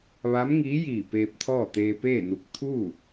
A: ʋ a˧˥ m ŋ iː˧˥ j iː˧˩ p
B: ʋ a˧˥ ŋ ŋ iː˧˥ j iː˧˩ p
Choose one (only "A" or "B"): A